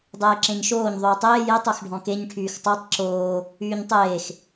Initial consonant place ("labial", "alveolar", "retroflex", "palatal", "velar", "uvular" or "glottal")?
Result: alveolar